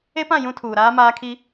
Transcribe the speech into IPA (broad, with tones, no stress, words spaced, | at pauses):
e˦pã˦˨ jũ˦ tʰuː˨ɾaː˦maː˦kʰi˦